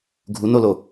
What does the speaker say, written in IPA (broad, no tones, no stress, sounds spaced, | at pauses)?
ɡʱ u n o l o